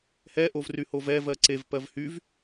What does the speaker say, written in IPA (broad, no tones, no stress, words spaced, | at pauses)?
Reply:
hɛʔov ryhovɛvɜ ǀevpɜv hyv